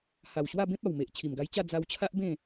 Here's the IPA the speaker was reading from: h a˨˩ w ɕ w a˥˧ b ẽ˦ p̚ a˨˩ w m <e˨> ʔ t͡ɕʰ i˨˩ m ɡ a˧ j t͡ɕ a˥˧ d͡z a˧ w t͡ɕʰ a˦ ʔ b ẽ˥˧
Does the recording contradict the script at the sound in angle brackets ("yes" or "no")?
no